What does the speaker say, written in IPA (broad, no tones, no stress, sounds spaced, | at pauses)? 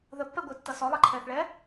ð ə pː ɛ ɡʷ ɪː tː ʌ s ɔ lˠ ʌ ǃʰ ɛː θ ɭ ɛː